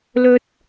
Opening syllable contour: high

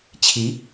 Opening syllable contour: rising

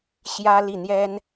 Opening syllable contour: high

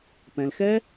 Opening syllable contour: low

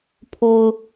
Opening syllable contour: low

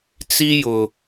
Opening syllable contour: high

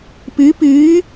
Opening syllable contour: rising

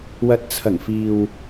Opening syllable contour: low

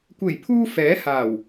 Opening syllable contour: low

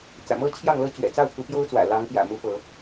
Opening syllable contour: low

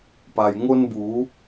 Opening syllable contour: low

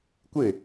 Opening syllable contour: falling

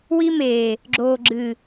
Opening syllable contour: high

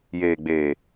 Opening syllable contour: low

